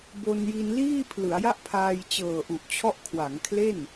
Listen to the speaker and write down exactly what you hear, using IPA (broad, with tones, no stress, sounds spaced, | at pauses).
b o˧ n j i˧ n l iː˥˩ pʰ l ɯ˩˦ a̯ j a˥˩ ʔ pʰ aː˧ j t͡ɕ ɤː˨˩ ʔ u˨˩ ʔ t͡ɕʰ ɔ˦˥ ʔ kʰ w a˩˦ ŋ kʰ l e˥˩ n